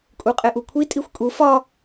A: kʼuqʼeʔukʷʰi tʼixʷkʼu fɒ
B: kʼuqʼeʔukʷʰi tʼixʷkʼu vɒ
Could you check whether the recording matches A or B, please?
A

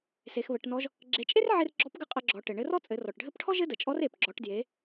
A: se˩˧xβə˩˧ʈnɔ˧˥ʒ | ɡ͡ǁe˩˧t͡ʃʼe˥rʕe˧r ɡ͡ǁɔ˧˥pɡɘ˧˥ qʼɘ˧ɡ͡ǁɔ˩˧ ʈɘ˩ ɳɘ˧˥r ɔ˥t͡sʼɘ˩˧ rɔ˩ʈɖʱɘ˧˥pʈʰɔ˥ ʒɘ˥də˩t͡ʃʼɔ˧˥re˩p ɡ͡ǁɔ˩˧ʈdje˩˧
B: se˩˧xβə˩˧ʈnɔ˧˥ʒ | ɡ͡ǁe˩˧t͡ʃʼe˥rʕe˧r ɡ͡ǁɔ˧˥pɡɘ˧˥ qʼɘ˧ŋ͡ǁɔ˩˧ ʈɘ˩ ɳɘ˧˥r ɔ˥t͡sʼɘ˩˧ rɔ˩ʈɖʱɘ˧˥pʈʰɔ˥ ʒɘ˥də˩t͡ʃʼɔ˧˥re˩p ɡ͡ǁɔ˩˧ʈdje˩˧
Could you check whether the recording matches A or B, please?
A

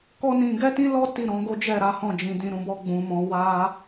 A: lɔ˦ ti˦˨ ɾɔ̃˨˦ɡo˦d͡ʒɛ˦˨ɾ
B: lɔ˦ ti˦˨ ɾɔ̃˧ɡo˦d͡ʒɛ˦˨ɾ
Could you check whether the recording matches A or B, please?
A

